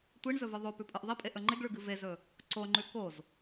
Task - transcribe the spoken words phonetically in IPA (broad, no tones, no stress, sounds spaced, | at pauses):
tʷ i ɳ z ɵ v ɨ ðˤ o p ʉ pʼ ɨ ʔ ðˤ i pʼ e ʔ ɵ ŋ͡ǃ e ɡ ɭ ʉ ɡ ɨ v e z ɵ | ǀ o ŋ͡ǃ ʉ k o z